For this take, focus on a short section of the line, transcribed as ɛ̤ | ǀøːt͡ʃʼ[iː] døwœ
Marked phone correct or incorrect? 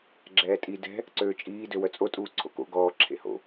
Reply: correct